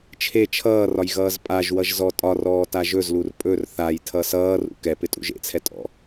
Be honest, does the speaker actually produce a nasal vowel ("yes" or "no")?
no